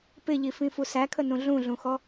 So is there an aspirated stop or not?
yes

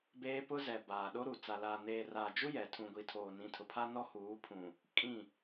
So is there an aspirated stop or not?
yes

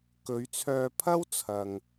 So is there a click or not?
no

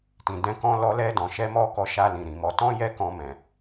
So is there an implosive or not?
no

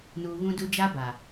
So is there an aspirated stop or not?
no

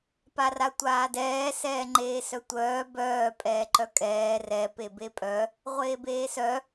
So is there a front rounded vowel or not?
yes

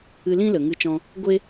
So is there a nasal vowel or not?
yes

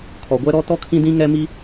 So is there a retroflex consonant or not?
no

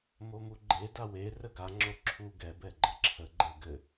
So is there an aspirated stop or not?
yes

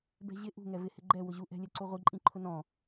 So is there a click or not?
yes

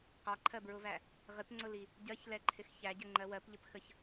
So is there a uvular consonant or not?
yes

